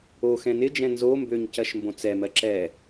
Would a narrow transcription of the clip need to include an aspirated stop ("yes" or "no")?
no